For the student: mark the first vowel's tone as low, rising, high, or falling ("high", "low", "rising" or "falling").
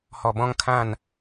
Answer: low